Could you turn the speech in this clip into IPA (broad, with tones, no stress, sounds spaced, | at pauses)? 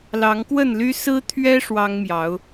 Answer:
l ɑ˨˦ ŋ k w ə˥˨ n l y˦ s ɹ̩˦ t̪ʰ ɥ ɛ˦ ʂ w ɑ˦ ŋ m j ɑ˨˦ ʊ̯